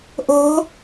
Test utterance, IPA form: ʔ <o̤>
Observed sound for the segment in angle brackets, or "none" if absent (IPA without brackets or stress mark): o̤